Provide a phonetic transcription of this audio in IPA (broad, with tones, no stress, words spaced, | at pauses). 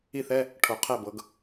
i˥˨θɛ˧˥˧ | ʈʰo˨˩˦ qʰɛ˥˨bɤ˩˥ɡ